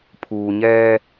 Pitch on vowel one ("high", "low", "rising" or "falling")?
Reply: low